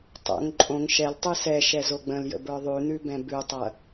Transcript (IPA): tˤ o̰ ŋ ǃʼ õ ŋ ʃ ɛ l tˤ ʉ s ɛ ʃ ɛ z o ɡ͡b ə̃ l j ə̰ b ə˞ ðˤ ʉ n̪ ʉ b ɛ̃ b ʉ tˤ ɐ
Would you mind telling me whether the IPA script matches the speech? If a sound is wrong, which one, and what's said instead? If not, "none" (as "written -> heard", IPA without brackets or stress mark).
none